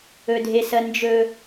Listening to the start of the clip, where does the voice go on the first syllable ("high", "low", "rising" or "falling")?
low